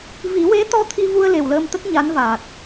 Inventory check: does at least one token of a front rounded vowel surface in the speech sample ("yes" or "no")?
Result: no